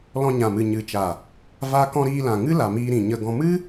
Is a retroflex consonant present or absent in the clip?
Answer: absent